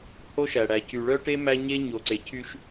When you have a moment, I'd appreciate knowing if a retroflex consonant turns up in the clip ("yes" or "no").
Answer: yes